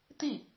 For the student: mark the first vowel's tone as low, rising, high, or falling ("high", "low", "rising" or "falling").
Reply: falling